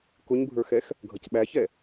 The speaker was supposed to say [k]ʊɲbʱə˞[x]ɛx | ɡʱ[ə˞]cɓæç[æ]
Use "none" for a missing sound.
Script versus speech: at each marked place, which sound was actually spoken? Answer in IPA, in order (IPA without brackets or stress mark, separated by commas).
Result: k, x, ʌ, ɛ